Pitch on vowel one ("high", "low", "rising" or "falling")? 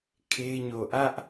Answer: high